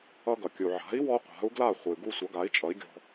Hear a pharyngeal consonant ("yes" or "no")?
yes